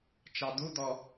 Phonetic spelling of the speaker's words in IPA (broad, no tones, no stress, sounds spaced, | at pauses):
t͡ʃ ɑ d̪ u d̪ ɔ